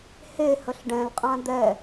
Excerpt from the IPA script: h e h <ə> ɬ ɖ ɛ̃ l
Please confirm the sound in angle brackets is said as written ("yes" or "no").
yes